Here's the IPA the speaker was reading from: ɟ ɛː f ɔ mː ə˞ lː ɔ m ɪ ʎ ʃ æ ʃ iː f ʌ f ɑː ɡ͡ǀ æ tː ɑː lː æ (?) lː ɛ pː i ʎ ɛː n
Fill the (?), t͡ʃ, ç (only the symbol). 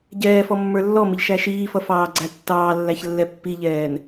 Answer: ç